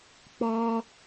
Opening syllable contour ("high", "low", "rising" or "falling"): high